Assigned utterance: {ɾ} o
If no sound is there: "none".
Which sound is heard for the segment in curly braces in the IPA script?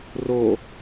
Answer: r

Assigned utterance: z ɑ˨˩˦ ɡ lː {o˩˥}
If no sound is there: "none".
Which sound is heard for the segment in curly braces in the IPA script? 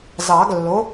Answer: o˩˥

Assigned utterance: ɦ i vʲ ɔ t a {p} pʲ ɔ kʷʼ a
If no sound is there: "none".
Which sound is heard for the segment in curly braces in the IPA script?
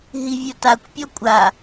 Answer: kʷ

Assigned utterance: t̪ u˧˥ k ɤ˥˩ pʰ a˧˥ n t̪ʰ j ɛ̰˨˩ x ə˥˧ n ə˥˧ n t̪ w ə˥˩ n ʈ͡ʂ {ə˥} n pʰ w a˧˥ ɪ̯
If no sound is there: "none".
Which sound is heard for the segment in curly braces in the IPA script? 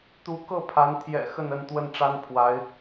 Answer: a˥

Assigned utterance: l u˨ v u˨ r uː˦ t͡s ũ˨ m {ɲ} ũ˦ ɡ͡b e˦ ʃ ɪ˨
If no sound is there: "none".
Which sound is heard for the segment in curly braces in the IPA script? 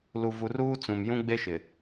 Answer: j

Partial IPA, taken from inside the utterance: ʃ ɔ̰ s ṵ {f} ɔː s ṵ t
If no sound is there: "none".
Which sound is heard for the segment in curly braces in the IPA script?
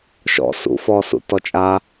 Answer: f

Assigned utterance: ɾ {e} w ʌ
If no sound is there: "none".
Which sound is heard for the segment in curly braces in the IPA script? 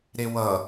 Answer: e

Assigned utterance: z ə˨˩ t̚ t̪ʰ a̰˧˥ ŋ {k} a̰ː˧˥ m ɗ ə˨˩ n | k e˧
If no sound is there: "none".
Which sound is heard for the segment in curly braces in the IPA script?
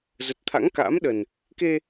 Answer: k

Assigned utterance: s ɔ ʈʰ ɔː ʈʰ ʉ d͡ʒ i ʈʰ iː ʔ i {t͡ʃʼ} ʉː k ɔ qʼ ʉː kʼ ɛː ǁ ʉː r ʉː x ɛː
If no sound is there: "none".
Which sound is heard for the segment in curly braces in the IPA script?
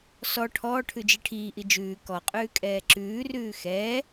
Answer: d͡ʒ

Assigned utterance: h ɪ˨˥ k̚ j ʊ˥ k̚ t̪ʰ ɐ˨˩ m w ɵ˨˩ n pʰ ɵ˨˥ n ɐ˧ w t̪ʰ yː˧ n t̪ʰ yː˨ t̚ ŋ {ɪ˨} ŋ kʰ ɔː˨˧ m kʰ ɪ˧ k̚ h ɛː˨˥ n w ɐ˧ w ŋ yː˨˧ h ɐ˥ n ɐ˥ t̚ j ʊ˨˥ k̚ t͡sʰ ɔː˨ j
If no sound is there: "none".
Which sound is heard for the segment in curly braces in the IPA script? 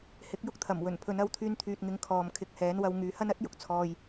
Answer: ɪ˨˥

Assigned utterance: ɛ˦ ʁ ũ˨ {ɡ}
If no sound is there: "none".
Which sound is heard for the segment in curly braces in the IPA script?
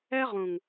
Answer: ŋ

